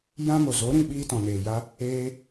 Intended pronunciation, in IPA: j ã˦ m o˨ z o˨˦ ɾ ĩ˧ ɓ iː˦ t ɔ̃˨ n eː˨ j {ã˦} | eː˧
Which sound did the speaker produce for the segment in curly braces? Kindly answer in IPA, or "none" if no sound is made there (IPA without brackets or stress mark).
a˦